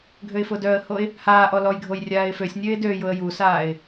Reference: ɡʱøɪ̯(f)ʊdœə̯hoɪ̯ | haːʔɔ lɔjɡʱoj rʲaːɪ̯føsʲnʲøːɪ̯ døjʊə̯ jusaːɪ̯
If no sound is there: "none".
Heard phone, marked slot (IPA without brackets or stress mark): f